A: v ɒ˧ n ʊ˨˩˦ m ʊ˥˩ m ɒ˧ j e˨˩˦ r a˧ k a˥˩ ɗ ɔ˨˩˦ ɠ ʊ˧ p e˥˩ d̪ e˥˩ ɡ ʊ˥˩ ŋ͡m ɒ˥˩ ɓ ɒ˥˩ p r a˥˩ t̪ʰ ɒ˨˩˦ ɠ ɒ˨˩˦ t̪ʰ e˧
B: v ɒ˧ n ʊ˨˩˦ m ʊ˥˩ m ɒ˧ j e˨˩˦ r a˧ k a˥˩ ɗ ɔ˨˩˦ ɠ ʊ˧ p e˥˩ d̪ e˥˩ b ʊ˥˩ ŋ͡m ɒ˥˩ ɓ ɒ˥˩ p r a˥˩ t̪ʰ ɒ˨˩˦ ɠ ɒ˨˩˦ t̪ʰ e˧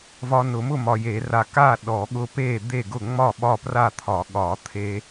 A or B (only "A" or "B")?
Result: A